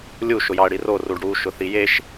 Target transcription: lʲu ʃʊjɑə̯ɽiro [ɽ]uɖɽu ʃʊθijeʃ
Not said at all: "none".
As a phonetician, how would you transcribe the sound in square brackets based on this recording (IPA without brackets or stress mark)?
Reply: r